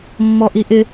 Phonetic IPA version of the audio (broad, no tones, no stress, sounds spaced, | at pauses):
mː ɔ ʔ i ʔ ɪ